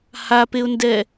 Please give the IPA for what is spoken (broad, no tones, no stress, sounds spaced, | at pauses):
h a p e ʊ̯ n d ɛ